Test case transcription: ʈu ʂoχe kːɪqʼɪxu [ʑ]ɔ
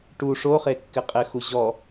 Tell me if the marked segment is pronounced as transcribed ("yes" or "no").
yes